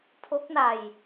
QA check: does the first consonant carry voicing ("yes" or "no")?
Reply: no